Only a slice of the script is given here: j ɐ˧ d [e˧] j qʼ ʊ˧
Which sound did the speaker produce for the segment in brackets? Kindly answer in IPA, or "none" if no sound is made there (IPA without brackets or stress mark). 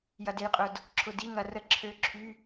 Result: e˧